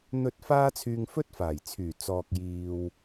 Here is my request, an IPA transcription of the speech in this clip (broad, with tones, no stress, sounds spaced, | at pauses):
n̪ ɵ˧ t̚ f aː˥ t͡sʰ yː˧ ŋ f ɵ˥ t̚ f aː˨˩ j t͡sʰ yː˨˩ t͡s ɔː˨ k̚ j iː˨ w